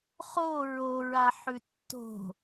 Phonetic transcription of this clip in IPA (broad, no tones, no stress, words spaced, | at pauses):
χo ɹoɹa ħʉtːo̤